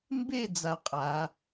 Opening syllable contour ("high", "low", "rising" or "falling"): falling